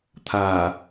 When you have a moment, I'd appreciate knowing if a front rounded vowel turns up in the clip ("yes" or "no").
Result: no